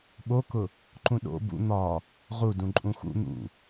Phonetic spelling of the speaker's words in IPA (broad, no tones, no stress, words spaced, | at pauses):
ɓokʊ | ǃũɗo̰ bṵ n̪ɒ | ʁu dũǃʼũxṵ n̪ṵ